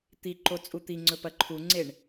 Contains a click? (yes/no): yes